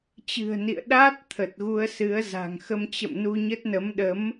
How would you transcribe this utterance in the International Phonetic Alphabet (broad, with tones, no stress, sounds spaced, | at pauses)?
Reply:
t͡ɕ ɨ̤˨˩ ə̯ n ḭ˧˨ ə̯ ɗ a˦˥ t̚ t̪ʰ ə˨˩ t̚ ɣ u˧ ə̯ s ɨ˨˦ ə̯ z a̤˨˩ ŋ x ə˧ m t͡ɕ ə̰˧˨ m n u˧ ɲ ə˦˥ t̚ n ə˨˦ m ɗ ə˨˦ m